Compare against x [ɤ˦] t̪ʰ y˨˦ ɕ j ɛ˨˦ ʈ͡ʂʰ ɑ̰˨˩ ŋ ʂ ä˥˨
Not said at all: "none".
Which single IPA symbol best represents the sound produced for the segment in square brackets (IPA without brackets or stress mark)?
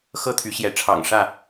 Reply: ɤ˦